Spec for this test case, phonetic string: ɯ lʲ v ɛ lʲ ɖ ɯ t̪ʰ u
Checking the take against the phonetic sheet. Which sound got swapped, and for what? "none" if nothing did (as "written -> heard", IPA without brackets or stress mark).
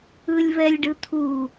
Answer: none